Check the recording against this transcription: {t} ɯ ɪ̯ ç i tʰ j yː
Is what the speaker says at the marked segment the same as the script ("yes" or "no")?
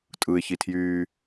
no